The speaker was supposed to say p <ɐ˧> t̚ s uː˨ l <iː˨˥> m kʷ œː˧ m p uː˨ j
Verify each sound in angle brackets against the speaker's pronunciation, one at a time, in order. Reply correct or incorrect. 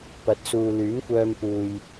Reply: incorrect: ɐ˨˥, incorrect: yː˨˥

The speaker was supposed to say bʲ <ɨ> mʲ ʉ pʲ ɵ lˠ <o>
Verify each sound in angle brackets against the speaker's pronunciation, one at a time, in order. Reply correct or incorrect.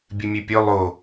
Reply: correct, correct

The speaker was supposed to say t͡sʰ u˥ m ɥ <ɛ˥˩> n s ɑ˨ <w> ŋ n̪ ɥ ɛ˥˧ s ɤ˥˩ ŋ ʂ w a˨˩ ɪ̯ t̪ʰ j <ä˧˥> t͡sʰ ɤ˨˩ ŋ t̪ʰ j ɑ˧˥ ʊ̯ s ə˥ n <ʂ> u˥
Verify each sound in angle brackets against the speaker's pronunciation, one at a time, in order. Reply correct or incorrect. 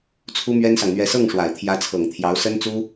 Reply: incorrect: ɛ˥, incorrect: none, correct, incorrect: t͡s

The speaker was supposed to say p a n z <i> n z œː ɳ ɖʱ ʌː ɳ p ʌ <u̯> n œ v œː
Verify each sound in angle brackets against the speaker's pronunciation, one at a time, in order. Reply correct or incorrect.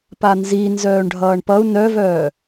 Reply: correct, correct

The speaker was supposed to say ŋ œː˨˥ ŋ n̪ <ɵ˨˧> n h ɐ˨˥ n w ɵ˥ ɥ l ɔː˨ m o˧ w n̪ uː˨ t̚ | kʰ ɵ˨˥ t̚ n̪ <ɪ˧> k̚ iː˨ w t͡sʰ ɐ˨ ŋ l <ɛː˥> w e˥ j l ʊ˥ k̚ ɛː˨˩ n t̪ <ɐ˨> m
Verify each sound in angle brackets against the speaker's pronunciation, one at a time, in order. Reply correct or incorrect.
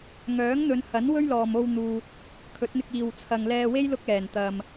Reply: correct, correct, incorrect: ɛː˧, correct

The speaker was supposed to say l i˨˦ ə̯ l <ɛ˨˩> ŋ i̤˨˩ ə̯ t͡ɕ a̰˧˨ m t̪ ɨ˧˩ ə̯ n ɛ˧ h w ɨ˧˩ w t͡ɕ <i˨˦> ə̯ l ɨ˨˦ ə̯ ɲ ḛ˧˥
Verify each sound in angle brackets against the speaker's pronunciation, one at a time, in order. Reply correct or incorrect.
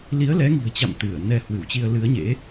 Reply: incorrect: ɛ˨˦, incorrect: i˧

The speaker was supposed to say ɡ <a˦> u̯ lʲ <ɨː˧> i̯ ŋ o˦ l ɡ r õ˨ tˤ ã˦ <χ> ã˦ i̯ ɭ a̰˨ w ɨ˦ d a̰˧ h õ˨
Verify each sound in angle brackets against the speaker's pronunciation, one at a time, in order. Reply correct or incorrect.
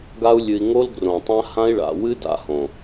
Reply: correct, incorrect: ɨ˧, incorrect: h

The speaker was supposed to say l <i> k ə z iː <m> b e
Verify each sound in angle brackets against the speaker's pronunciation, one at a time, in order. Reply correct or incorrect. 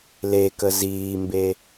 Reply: incorrect: e, correct

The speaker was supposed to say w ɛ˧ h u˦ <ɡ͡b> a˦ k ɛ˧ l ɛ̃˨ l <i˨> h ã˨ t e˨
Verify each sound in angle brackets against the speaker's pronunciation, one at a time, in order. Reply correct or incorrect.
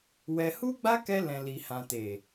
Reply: correct, correct

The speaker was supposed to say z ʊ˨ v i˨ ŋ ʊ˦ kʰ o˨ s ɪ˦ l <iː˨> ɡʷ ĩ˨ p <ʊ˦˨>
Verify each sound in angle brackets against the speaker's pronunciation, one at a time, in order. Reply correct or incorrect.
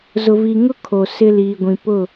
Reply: correct, correct

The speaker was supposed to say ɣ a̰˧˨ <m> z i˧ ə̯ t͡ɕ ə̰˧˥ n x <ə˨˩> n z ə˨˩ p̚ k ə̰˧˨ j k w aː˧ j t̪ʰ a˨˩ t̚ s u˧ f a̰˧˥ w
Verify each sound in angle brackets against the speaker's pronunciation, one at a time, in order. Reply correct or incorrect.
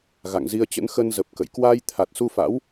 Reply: incorrect: ŋ, incorrect: ə˧

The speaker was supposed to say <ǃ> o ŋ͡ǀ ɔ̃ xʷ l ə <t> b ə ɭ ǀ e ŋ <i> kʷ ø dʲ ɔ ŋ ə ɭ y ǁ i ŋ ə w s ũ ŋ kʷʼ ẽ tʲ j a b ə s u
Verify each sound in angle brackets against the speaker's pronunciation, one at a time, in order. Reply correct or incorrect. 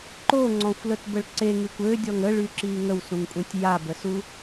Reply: correct, correct, incorrect: y

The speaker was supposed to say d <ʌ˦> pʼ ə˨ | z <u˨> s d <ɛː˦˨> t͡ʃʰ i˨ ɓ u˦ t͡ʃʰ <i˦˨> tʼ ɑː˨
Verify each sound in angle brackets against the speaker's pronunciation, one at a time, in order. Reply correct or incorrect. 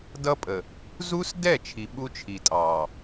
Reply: correct, incorrect: u˦, incorrect: ɛ˦˨, incorrect: i˨

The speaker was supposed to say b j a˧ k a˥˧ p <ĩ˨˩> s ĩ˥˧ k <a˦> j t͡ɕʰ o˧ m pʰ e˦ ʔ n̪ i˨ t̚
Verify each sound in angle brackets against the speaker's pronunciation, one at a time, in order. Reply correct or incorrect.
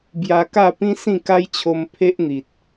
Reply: incorrect: ĩ˦, correct

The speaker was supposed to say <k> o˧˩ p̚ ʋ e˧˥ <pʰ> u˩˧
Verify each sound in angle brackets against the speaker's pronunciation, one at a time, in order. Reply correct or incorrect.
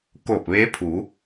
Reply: correct, correct

